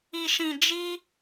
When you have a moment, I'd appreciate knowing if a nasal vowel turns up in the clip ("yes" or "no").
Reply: yes